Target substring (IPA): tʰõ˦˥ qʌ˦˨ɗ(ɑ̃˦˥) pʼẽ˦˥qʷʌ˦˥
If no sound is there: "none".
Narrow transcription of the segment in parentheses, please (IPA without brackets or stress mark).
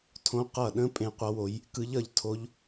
ə̃˦˥